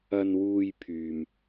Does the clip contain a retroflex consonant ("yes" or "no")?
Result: no